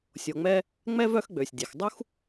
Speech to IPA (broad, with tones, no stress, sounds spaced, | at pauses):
sʲ o˨ ŋ͡m ɛ˦ | ŋ͡m ɛ˥ v œ˦ x ɡ͡b ø˩ sʲ dʲ e˩ x dˤ u˦ x